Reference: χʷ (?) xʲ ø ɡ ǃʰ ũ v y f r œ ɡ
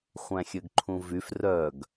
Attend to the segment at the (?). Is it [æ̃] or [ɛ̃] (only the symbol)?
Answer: æ̃